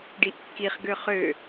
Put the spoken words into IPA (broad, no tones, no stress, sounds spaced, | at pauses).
ɖ i ʔ kː i χ ɡ ø χ ø